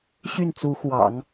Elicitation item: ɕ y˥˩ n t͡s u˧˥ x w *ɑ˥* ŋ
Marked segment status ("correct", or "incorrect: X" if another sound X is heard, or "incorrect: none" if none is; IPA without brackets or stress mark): incorrect: ɑ̰˨˩˦